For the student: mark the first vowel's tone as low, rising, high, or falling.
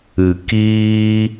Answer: low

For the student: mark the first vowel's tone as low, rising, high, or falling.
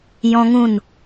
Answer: high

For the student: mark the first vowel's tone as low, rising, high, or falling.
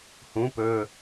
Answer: rising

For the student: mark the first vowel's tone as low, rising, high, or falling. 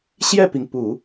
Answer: falling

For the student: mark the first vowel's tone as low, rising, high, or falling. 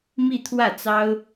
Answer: falling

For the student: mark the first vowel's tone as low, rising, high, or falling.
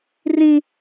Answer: high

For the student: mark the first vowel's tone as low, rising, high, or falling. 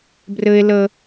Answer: high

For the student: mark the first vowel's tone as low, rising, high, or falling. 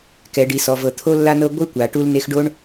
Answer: low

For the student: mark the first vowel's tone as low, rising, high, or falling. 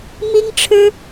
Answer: high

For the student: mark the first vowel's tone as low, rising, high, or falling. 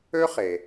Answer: high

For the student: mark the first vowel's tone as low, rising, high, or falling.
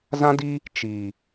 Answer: high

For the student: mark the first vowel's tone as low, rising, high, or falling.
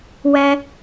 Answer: high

